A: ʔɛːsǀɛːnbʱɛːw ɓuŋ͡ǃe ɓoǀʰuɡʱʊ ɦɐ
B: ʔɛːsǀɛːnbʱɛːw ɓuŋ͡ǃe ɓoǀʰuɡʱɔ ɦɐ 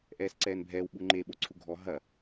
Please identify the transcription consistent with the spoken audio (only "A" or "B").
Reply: B